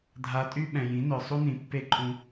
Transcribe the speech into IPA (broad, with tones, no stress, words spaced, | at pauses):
dʱa˩tʼy˧ ɓɛ̃˩jĩ˩˥nœ˩ sˤu˥nĩ˩˥ pːe˥ǃʼũ˧